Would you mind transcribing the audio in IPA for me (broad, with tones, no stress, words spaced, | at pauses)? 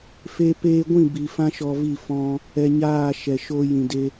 fe˧peː˧ɡʷĩ˦˨ bi˨ fã˦ʃɔ˧vi˦˨ fɔ̃˧ | ɛ˧ɲaː˦˨ʃɛ˨ʃo˧ jĩ˨de˧